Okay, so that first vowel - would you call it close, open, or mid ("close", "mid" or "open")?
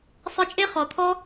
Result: close